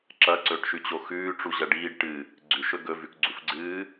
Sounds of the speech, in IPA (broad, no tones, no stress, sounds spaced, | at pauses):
ǁ ɐ ǀ ɵː ʈ ʃ ʉ t͡ɕ o x ʉː ʈ͡ʂ u ʑ ɐ ɖ iː ɖ ʈ ɨ | ɡ͡ǀ ʉ ʃ ɵ ɡ ɵ v ʉ k ɡ͡ǀ u f ɡ͡ǀ ɨː